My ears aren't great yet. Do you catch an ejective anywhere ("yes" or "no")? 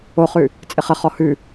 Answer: yes